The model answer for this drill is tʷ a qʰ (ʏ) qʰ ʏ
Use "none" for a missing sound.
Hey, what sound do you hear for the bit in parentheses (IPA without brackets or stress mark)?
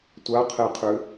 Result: ɛ